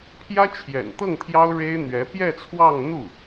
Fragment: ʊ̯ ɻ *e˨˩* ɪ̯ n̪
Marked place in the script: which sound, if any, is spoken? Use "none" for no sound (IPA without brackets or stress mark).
e˥